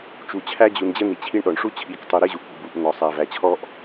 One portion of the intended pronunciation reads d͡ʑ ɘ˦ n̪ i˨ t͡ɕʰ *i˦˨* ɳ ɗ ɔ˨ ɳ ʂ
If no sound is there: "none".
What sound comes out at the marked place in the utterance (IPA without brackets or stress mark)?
i˦